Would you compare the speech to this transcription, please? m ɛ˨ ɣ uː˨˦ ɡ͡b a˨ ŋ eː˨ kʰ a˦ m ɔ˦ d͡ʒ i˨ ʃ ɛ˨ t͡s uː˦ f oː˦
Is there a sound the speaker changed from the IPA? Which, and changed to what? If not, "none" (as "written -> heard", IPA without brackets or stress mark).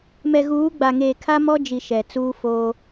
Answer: none